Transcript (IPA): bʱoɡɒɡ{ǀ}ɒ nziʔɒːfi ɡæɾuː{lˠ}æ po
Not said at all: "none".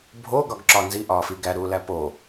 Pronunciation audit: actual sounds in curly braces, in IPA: ǁ, l

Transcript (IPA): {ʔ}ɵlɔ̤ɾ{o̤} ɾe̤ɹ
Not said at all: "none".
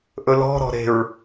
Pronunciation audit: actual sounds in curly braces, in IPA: ʔ, ɔ̤

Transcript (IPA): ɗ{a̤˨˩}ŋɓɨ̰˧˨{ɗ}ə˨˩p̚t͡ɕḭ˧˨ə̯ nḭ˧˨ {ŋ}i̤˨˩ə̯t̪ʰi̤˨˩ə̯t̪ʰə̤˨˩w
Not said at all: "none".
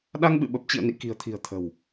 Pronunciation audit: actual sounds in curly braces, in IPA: a˧, ɓ, k

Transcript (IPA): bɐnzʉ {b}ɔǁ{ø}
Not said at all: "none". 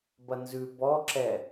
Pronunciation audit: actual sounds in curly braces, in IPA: b, ɛ

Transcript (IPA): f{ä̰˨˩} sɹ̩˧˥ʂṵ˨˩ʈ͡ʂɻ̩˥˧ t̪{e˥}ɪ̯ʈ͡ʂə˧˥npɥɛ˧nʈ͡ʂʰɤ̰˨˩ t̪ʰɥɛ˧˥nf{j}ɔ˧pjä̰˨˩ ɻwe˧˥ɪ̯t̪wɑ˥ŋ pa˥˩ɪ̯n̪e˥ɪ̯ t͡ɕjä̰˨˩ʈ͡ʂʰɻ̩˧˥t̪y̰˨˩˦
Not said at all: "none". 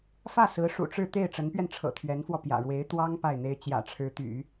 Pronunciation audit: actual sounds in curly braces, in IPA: ä˥˩, e˥˩, w

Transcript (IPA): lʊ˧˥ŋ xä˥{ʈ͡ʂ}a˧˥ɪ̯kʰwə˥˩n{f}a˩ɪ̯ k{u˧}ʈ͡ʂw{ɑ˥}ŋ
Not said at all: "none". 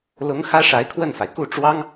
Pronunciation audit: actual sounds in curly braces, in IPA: ʂ, f, u˥˩, ɑ˥

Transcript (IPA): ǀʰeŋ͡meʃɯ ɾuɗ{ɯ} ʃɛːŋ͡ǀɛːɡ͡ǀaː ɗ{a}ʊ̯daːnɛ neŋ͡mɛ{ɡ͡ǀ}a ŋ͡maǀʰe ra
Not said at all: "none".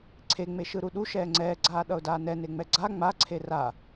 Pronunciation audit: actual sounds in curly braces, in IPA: u, ʌ, ɡ͡ǀ

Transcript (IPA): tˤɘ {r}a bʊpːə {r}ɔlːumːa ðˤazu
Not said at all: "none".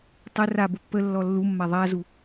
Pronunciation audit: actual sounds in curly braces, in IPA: r, lː

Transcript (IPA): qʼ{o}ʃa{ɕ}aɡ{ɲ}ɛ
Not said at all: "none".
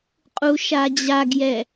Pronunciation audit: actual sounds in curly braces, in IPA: u, d͡ʑ, j

